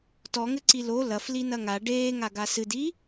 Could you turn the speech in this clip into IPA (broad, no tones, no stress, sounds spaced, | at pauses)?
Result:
t ɔ ŋ ɘ ǀ i l o l ɐ f l i n ɐ ŋ a ɖ eː ŋ a ɡ a s ɨ d i